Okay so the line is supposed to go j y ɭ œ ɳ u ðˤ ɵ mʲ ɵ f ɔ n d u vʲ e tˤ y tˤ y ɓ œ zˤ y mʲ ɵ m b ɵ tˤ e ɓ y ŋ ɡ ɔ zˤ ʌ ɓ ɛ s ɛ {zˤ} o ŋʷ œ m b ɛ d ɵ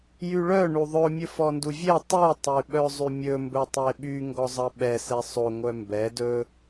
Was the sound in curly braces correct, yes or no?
no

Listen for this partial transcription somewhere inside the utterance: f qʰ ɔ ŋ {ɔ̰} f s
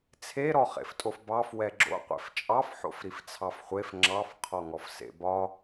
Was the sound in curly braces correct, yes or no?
no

